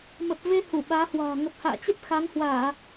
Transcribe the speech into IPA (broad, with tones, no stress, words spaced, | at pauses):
mə˨˩p̚ve˧ hu˧˩ɓaː˨˦hwa̤ː˨˩ ŋə˨˩p̚ha̰ː˧˨t͡ɕə˦˥p̚ xa˨˦ŋhwaː˧˩˨